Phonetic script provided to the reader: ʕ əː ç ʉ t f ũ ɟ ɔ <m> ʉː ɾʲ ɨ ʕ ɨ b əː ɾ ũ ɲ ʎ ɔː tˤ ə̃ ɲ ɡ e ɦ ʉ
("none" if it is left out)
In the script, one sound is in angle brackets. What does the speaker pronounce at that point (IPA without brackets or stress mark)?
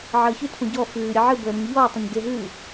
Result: f